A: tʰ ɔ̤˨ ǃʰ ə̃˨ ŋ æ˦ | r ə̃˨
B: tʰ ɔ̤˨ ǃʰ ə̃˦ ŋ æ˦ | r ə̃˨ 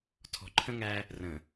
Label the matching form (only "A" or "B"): B